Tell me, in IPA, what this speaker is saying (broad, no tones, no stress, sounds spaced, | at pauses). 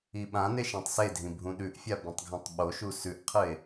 i ɓ ã n e ʃ ã tˤ s e dʱ ĩ bʱ ũ ɗ ʉ ʔ fʲ a b ĩ tˤ ɡʱ ã tˤ ɓ o ʃ u s ʉ ʔ qʰ ɨ e̯